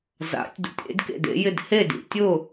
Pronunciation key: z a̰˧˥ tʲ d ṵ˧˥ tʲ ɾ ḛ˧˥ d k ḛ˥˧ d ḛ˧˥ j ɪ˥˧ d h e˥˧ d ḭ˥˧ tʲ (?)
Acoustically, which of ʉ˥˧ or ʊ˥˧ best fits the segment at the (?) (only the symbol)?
ʊ˥˧